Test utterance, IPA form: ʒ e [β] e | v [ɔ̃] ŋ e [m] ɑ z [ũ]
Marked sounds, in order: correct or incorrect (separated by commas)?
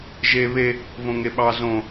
correct, incorrect, incorrect, incorrect